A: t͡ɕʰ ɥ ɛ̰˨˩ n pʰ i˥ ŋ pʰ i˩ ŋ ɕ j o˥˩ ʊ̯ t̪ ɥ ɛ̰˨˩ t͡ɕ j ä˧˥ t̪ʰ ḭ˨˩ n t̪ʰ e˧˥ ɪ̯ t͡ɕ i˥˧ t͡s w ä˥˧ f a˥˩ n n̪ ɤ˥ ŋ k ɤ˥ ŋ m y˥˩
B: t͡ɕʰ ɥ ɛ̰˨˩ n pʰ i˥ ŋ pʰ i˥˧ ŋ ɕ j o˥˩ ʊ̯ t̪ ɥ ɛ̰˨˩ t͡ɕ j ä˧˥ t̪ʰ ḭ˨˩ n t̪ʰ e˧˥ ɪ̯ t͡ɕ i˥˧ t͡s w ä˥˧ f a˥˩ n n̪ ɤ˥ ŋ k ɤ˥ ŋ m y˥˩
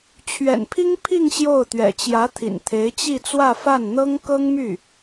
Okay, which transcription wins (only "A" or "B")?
B